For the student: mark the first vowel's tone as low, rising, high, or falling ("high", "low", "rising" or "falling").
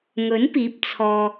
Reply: rising